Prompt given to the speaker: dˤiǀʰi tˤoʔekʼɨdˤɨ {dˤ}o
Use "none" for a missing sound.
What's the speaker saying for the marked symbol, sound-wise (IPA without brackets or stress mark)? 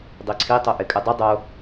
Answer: dˤ